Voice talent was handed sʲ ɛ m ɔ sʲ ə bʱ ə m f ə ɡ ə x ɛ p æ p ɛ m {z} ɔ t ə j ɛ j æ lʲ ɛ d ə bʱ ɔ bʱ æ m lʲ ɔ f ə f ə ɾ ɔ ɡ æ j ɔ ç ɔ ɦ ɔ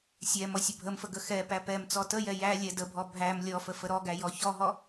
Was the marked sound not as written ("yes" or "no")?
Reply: yes